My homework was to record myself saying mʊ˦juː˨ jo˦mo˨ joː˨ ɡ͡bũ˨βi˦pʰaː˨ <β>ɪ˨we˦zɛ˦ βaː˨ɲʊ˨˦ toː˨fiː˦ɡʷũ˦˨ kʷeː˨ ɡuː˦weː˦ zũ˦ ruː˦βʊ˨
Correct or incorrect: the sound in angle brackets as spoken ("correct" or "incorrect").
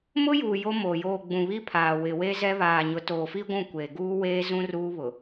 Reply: incorrect